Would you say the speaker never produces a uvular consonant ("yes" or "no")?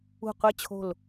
no